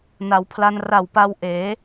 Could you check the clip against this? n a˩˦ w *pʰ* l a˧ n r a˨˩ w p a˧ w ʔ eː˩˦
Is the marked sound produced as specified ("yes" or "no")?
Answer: yes